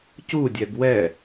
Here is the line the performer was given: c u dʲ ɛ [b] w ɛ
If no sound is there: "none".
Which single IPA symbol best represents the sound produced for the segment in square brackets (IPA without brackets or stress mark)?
b